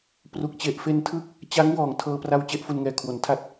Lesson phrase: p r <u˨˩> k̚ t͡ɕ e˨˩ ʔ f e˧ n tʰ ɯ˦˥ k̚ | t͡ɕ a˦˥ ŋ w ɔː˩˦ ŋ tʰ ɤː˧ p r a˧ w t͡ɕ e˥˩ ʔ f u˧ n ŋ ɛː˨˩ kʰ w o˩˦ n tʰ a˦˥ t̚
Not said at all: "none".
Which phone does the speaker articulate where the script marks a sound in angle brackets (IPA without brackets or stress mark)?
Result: u˨˩